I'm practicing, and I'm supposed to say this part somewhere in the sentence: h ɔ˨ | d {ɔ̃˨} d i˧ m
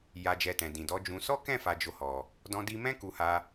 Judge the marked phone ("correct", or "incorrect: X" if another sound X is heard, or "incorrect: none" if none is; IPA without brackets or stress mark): incorrect: ɔ̃˧